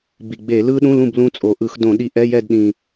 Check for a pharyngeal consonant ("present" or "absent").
absent